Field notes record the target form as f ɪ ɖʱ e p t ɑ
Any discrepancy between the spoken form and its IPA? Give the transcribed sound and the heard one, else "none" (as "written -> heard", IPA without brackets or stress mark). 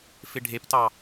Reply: none